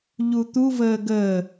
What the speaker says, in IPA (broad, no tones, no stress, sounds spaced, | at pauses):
ʎ u t̪ u v əː ɡ ə